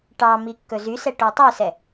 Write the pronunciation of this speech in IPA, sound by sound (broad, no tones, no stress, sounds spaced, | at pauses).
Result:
ʈ ɑ m i kː ɵ z y s ɛ ʈ o tˤ y s ɛ